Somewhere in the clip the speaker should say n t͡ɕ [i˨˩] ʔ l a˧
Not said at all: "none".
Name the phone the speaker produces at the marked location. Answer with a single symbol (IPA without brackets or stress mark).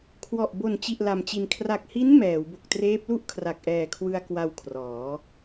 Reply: i˨˩